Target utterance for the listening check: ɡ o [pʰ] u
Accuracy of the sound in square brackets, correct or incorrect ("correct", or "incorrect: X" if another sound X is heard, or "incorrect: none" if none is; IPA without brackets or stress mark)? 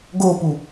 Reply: incorrect: p